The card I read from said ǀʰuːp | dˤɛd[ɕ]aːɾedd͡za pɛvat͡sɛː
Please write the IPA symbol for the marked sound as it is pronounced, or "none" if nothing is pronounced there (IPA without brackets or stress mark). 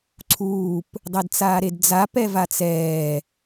t͡s